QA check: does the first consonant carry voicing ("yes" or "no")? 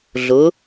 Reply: yes